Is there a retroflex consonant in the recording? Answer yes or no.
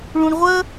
yes